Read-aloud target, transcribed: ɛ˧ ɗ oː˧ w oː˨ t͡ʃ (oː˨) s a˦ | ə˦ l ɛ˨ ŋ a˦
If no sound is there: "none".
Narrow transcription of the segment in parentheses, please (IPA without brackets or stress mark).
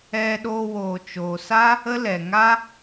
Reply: oː˨